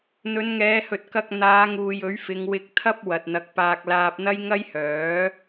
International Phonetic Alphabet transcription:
n̪ ɵ˨˧ n ŋ ɛː˨˧ h ɵ˨ t̚ k ɐ˧ k̚ n̪ aː˨˧ ŋ uː˨ j ɵ˨˥ ɥ f ɪ˨˧ ŋ w ɪ˧ k̚ t̪ʰ ɐ˥ p̚ w ɐ˨ t̚ n̪ ɐ˨˥ k̚ p aː˧ k̚ l aː˧ p̚ n̪ ɐ˥ j ŋ ɐ˥ j h œː˨˥

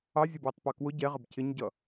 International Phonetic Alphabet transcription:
ɑ zʲ ʊ b w ʌ tˤ p ɑ k w ʊ ɟ ɛ ʁ ə b cʰ ɪ ɲ ɟ ʌ

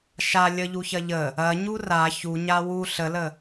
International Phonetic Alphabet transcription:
ʃ a lʲ ə ʎ u ç ɐ ʎ ə | ɐ ɲ u r a ç u ɲ a w u ɬ ə l ə

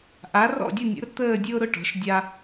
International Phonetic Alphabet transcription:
ʔ a˩˥ r ɔ̰˥˩ dʲ ʊ˥˩ nʲ ə̰˩˥ r t̪ əː˥˩ dʲ ʊː˦ ɾ ʊ˥˩ ʈ ɔ̤˩˥ ʃ dʲ a˦

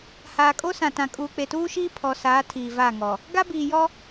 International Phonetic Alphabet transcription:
h aː˨ kʼ o˦ s ã˨ t ã˨ kʼ uː˨ k͡p e˨ t uː˦ ʃ iː˦ pʰ ɔ˨ s aː˨˦ tʰ iː˨ v a˦˨ ŋ ɔ˨ | ɡ a˦ b iː˨ j ɔ˦

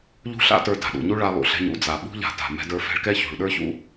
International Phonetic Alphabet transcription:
ʎ ṳ˥ ɬ a̰˥ t ə˞˧ d a̤˩ ɗ ṵ˩ ɲ u˥ ɭ a˧ lˠ ṵ˩ ɬ ɛ̤˧ ɲ ṵ˥ d͡z a˩ ɓ ṳ˥ ʎ a̤˧ t a̤˩ m ɛ̤˧ d ə˞˧ f ɛ̤˧ ɭ k ɛ˥ ç ṳ˩ ɭ ɗ ə˞˥ ç ṵ˥

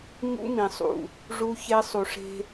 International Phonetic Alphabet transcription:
ɲ ṵ˦ m ĩ˨ sˤ ṵ˨ | ʐ u˦ ç e˦ sˤ u˨ ʂ e̤˦

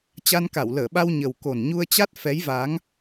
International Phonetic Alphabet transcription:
t͡ɕ a˧ n k a˧˩ w l əː˧˩ ɓ a˧ w ɲ ə˨˩ w k o˨˩ n ɲ u˧ ə̯ t͡ɕ a˦˥ t̚ f ɛ˨˦ j v aː˨˦ ŋ

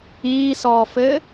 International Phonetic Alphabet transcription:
iː s ɔː f ɘː

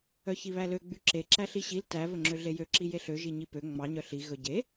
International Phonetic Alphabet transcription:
œ ç i β æ l ø ɡ͡b y ǁ e ǁ æ ɬ i ɕ i l t æ v ɵ ŋ͡ǁ ø ɮ e j ø ǁ i j e ɬ ø ʒ i ɲ i p ø ŋ͡m ɑ ɲ œ ɬ i ɣ ɵ ɟ e

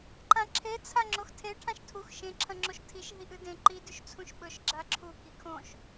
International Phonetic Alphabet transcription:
ǃ ã ǁʰ e t͡sʰ a ŋ͡ǁ o x tʰ e ʈʰ ã ʃ tʰ u x ʃ ẽ ǁʰ ɐ̃ ŋ͡ǁ o ʃ tʰ i ʃ ɦ i ʔ ɨ d ẽ ǃ i d ʉ ʃ t͡sʰ ũ ʃ ɓ ɵ ʃ ɡ͡ǁ a ǁʰ u k i kʰ õ ʃ

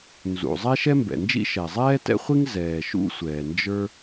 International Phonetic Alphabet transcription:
n z ṵ˩ zˤ ɛ˥ ʃ ɛ˥ m b ɛ̰˩ n d͡ʒ ḭ˥ ʃ ɛ˩ zˤ ɛː˥ t ɛ̰˥ χʷ i˥ ŋ z ɛː˩ ʃ ṵ˥ sʷ ɛː˩ n d͡ʒ ə˞˥

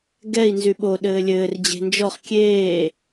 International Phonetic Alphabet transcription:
ɡ ɛ i̯ n z y ɓ o ɗ ɘː lʲ ɘː r d͡ʑ e̤ n d͡ʒ ɔ χ kʲ eː

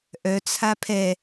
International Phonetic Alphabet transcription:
ʔ œ t͡sʰ a pʰ ɛ

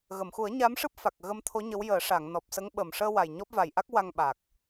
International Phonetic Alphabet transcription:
ɣ ə˨˩˨ m x u˨˩˦ ə̯ ɲ a˧˥ m ʂ ɨ˦˥ p̚ f a˨˩ k̚ ɣ ə˧ m t̪ʰ o˧˥ ɲ ə˧˥ w j əː˨˩˦ ʂ a˨˩˨ ŋ n ɔ˨˩ p̚ s ə˧˥ ŋ ɓ ə˨˩ m ʂ əː˧ w a˨˩ j ɲ ɔ˦˥ p̚ v a˨˩ j ʔ a˦˥ k̚ w a˧ ŋ ɓ a˨˩ k̚

